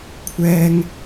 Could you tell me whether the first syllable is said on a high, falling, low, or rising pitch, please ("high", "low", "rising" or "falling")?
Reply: low